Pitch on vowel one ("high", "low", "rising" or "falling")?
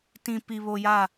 low